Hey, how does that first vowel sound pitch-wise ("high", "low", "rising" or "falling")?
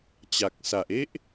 low